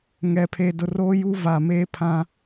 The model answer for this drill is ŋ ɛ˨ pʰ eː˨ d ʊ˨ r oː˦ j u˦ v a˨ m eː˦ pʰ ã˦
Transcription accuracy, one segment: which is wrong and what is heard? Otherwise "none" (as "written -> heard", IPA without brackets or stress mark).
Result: none